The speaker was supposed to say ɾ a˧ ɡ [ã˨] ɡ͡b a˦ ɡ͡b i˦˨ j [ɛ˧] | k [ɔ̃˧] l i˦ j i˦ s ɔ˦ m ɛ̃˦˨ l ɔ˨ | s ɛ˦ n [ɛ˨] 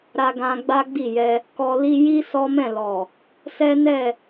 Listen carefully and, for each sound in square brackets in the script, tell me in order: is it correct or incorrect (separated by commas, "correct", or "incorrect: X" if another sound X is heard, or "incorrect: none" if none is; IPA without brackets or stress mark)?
incorrect: ã˧, correct, incorrect: ɔ˧, incorrect: ɛ˦˨